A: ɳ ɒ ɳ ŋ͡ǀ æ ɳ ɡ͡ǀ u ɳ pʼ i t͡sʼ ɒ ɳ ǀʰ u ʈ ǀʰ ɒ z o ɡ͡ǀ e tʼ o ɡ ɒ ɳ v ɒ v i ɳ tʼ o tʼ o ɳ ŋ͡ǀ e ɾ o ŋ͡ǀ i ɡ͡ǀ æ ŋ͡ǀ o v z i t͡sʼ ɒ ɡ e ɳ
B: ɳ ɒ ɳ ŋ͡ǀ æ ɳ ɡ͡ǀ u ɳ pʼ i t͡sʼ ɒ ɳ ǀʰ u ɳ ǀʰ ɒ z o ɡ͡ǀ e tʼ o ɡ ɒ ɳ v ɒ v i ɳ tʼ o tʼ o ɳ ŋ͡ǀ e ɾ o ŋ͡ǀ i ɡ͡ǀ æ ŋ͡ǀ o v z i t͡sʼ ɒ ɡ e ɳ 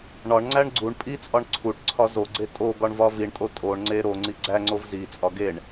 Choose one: A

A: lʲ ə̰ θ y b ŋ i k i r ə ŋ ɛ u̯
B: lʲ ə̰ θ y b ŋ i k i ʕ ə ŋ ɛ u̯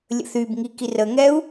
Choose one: A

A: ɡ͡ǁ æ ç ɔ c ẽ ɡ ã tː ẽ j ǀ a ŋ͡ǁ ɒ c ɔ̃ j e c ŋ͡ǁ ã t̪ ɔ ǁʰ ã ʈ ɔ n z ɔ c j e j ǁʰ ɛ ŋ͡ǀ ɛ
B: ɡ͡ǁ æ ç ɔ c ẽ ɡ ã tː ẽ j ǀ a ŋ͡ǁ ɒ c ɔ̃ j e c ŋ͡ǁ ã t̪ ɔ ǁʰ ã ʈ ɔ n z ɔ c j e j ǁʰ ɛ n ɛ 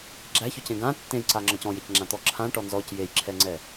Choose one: A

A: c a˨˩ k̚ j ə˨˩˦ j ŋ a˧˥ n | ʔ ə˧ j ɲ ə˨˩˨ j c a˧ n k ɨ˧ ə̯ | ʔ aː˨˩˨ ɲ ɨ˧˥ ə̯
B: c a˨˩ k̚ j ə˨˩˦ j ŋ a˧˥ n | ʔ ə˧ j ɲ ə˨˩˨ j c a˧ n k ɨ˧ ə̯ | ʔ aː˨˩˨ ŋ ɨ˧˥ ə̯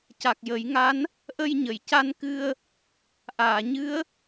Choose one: A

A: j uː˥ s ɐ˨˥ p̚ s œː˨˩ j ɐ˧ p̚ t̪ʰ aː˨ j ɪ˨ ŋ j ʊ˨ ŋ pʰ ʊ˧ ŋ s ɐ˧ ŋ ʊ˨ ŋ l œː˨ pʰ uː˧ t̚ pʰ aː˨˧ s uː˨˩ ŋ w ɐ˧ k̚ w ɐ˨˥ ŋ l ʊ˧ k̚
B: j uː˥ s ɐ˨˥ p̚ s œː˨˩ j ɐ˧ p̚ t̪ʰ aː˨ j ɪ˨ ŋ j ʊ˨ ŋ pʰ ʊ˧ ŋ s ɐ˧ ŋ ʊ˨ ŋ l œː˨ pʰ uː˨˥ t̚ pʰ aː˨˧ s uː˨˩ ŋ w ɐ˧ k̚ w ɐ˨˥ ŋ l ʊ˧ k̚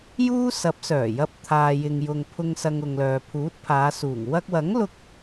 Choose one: B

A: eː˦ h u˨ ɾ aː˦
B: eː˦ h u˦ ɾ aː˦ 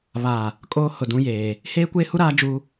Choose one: B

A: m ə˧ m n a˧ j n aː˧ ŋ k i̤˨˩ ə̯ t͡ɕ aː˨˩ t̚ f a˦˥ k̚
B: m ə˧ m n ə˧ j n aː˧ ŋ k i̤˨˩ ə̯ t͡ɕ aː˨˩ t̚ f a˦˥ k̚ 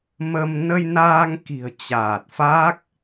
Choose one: B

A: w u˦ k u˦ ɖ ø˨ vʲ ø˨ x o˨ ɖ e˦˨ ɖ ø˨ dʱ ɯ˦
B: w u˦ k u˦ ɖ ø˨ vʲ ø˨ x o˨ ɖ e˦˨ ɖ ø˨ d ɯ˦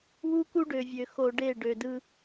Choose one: B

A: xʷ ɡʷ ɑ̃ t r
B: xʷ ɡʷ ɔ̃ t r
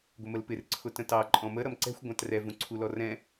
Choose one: A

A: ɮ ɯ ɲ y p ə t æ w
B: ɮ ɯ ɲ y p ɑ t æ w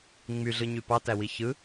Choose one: B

